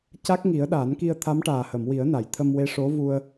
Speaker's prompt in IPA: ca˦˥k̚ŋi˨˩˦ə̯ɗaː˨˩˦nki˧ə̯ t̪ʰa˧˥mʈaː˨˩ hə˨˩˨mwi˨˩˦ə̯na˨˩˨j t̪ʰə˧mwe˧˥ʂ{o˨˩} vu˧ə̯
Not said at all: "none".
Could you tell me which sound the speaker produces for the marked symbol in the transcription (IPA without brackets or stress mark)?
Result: o˧˥